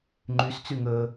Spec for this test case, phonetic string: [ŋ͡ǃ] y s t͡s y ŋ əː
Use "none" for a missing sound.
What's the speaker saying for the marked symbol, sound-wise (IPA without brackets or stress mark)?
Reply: ŋ͡ǃ